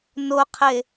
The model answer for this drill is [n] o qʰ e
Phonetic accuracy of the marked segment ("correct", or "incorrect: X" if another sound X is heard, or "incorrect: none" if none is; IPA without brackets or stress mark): correct